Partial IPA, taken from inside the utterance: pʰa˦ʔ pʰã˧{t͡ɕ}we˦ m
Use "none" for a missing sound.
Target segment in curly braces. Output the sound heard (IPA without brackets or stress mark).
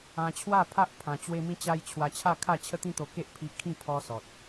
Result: t͡ɕ